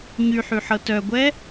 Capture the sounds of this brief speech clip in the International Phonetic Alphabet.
ɲyħyħɤ tœɡʷɛ

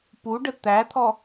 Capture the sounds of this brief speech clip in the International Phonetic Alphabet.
puɖə t̪æt̪ʰɔ

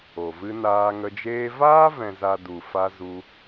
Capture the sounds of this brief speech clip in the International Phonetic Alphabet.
o˨vɨ˧ naː˧ŋə˧d͡ʒeː˦ vaː˦vɛ̃˨za˨ du˨fa˧ zu˧

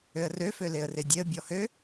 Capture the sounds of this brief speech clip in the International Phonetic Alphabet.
øə̯rø føleə̯redʲeə̯ bʲɔhø

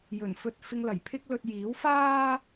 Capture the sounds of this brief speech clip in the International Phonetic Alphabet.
jɵ˨˩nfɵ˧t̚ fɪ˧ŋlɐ˨˩jpʰɪ˥k̚lɵ˧t̚ jiː˨˥w faː˥

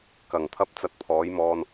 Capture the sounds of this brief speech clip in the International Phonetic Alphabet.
kɐ˨˩ŋt̪ʰɐ˥p̚ t͡sɐ˧t̚pʰɔː˨˥jmɔː˧n

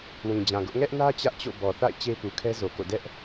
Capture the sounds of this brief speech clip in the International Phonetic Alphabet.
wĩ˨d͡ʑã˨ɡʊ˦ʔ ŋɛ˦ʔnä˦ t͡ɕä˦ʔt͡ɕo̰˦˨ bɔ˨θa̰˦˨ɪ̯ t͡ɕe˦pu˨kʰɛ˦ zo˨ko̰˦˨ dɛ˦ʔ

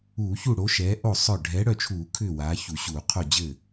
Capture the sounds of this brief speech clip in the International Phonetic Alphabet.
uː˧˩˧çu˥˩ ɽo˨˥ʃɛː˨˥ʔo˥˩ sˤœ˥˩ ɖʱɛː˨˥ɽœ˥˩t͡ʃʰuː˧˩˧ kʰʏː˥˩waː˨˥çu˧˩˧ɕuː˧˩˧ qʰo˥˩d͡ʑɘː˥˩

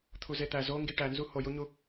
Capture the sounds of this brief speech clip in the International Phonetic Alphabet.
t̪ʰuzet̪æ zoŋɡi ʈænzu hojuɲu

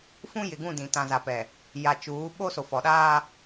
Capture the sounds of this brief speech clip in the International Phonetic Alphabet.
fũ˦jɪ˨ɡũ˦˨dĩ˨ tã˨za˨pɛ˨ | ja˨t͡ʃuː˨˦ ɓo˦ so˨fɔ˨ɗaː˦

